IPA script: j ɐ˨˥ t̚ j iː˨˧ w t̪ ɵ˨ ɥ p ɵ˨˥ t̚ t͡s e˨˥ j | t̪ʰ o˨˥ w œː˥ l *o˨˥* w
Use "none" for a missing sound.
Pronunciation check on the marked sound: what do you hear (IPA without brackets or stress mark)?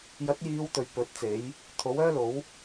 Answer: o˨˥